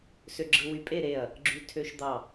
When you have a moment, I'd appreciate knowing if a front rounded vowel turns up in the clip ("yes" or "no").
yes